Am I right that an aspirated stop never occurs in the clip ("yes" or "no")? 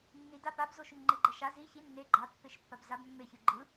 yes